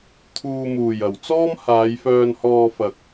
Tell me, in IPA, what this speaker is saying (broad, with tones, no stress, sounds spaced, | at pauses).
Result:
t̪ʰ uː˨ m uː˨˩ j ɐ˨˩ w t͡s ɔː˥ m h aː˨˧ j f œː˧ n h ɔː˧ f ɐ˨ k̚